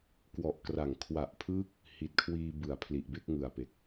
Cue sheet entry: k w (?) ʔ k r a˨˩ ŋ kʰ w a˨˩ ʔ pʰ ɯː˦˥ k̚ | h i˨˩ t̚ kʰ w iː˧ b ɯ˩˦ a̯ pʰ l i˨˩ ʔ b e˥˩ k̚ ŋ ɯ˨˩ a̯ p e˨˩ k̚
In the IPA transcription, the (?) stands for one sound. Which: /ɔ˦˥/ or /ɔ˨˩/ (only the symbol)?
ɔ˨˩